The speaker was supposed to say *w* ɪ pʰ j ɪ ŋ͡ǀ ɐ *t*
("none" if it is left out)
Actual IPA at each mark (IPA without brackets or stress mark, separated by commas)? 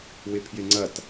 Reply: w, t